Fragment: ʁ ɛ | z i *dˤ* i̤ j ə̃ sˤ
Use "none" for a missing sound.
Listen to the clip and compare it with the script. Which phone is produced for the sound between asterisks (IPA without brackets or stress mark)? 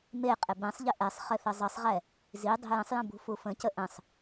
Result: dˤ